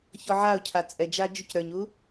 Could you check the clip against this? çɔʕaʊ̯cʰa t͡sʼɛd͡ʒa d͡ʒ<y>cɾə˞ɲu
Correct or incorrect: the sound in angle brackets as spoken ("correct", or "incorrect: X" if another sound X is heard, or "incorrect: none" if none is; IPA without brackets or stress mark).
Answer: incorrect: u